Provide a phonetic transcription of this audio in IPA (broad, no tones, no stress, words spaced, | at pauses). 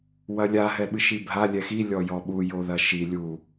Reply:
wɐlʲa ɦɛɓɨʃibʱa lʲɛxi lʲɔjɔɓu joðɐʃi lʲu